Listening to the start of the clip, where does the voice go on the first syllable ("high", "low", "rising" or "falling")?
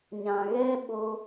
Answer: low